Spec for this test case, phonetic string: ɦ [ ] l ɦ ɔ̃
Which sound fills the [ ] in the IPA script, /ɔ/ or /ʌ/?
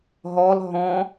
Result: ɔ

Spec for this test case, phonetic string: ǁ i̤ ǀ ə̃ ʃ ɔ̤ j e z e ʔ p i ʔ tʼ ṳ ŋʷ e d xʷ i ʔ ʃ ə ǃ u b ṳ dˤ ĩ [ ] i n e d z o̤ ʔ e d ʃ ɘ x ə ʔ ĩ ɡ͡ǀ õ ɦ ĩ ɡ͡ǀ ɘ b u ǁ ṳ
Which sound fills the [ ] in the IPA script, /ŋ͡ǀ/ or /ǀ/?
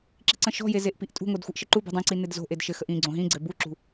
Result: ǀ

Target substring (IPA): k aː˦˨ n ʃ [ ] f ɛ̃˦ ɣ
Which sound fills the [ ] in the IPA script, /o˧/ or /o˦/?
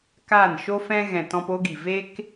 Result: o˦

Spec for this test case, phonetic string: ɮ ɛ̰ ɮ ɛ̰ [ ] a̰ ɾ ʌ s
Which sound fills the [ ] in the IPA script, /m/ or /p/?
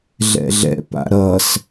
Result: p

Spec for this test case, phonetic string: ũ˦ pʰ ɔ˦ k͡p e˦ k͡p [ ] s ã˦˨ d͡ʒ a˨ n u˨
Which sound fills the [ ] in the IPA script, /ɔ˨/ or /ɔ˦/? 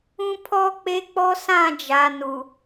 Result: ɔ˦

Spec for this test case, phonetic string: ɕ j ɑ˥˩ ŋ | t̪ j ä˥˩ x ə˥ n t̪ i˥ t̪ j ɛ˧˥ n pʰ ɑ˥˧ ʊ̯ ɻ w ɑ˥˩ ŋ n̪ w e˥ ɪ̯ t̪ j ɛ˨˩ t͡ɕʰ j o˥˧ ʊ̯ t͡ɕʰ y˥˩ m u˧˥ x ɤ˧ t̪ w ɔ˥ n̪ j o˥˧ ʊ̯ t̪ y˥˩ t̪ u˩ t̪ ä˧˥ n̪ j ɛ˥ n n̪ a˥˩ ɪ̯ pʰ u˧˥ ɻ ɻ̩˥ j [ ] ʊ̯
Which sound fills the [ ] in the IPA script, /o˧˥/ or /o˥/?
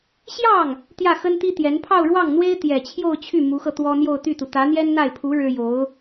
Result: o˧˥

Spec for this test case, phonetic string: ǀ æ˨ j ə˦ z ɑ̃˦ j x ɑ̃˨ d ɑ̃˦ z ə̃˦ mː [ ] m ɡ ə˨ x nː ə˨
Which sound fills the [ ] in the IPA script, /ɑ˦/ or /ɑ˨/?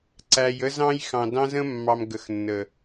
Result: ɑ˨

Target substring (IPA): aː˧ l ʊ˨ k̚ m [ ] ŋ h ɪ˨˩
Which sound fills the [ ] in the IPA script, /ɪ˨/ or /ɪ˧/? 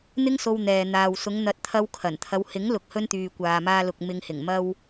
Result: ɪ˨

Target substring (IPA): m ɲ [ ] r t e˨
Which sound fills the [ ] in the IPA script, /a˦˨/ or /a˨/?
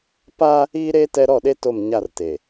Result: a˦˨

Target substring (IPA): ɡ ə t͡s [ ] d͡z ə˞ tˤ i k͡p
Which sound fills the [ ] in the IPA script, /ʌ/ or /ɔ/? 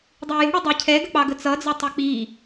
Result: ʌ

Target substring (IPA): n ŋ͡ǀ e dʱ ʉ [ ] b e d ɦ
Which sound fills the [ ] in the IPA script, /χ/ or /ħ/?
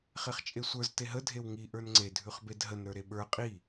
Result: χ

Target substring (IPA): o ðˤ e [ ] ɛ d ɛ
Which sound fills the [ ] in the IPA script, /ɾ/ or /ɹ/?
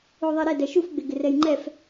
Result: ɾ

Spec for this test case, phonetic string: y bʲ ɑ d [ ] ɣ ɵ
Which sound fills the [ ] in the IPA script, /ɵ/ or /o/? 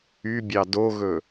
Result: o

